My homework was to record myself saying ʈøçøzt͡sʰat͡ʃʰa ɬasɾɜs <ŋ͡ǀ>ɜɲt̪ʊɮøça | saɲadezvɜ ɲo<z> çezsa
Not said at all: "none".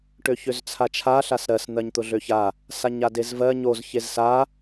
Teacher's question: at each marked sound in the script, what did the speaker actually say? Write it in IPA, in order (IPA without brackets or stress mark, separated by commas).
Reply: n̪, z